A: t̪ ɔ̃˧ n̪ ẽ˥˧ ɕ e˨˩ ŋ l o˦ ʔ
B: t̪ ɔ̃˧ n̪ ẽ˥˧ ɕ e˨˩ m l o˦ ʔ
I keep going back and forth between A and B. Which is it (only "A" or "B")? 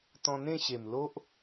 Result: B